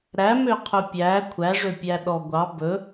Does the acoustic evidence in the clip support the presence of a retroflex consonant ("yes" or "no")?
yes